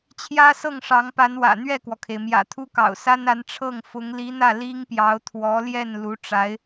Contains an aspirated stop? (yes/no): yes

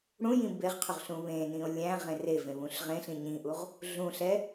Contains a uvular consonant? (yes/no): yes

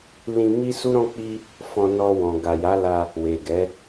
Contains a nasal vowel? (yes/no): yes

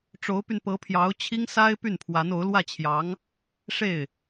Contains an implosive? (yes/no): no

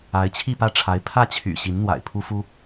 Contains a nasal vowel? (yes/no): no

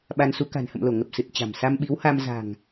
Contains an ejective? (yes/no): no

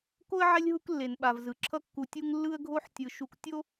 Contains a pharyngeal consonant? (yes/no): yes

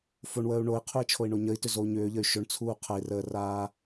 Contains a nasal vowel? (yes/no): no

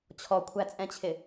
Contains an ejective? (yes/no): yes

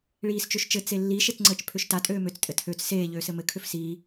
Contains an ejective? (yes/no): yes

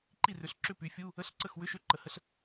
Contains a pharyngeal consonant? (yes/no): no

